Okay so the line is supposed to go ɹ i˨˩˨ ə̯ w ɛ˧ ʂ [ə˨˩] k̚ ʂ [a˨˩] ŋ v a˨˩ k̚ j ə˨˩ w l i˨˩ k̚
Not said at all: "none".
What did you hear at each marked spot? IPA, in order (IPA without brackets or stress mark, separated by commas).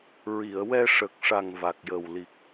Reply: ə˨˩, a˨˩